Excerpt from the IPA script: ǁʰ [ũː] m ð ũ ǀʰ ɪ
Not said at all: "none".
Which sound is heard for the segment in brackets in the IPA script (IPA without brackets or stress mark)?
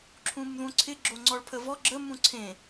ũ